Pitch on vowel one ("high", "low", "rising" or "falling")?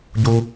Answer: high